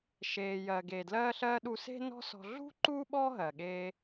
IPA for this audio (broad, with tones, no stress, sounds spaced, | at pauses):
ʃ eː˩ j ɜː˩ ɡ eː˩ d l ɜː˧ ɬ ɜː˧ ɗ u˧ s e̤˥ n ɔ̤˥ s ɔ̤˧ ɮ ṳ˥ ǃ uː˥ ɓ ɔː˥ ɦ ɜ˩ ɠ eː˧